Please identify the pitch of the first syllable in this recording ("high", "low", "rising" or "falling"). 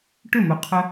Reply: falling